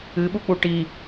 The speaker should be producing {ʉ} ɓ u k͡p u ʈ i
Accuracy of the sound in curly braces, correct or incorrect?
incorrect